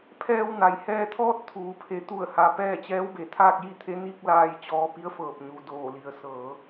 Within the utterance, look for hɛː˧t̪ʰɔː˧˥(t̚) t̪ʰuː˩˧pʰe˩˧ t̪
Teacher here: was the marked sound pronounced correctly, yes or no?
yes